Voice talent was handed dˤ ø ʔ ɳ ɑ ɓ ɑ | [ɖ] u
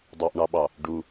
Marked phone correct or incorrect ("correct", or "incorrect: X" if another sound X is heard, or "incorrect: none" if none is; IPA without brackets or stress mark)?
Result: correct